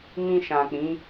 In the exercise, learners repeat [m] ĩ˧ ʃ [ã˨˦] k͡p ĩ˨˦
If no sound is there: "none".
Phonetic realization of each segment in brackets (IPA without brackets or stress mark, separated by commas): m, ã˨